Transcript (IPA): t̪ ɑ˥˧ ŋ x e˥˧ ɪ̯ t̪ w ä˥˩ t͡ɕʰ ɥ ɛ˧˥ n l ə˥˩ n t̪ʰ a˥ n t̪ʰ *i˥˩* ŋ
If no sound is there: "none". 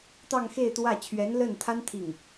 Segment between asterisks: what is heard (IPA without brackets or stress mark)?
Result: i˥˩